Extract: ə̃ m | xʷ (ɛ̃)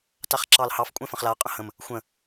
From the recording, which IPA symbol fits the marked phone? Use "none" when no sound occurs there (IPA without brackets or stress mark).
ə̃